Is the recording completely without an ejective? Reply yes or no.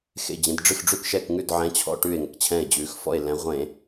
yes